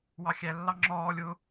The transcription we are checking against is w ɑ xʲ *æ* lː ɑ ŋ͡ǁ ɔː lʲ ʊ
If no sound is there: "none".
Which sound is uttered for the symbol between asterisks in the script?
æ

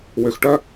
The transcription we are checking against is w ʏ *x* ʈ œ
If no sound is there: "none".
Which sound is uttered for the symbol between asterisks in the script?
x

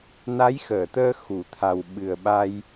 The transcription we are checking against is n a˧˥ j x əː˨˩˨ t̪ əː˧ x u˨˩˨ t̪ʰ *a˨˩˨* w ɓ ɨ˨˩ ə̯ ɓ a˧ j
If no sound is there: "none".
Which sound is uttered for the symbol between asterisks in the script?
a˨˩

